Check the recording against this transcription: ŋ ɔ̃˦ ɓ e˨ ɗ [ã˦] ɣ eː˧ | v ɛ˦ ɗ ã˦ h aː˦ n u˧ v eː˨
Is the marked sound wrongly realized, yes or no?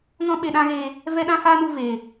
no